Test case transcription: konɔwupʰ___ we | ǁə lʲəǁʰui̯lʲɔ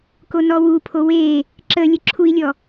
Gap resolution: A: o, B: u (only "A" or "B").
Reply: A